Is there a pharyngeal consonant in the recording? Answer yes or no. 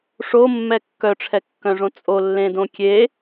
no